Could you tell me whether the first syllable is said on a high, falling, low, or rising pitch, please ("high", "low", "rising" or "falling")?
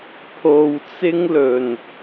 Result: low